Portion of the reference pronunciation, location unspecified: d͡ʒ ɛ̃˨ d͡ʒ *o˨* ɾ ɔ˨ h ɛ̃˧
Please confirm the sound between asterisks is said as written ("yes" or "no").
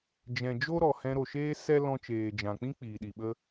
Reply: no